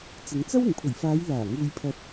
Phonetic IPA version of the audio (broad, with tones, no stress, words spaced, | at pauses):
t͡sɪ˨˧ŋt͡sɐ˥w ɪ˨˩ŋpʰɵ˨˩ɥfaː˨˧j laː˨˩ ŋuː˧jpʰɐ˧t̚